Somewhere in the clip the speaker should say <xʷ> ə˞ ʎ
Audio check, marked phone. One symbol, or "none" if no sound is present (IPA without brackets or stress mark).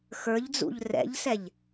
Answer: x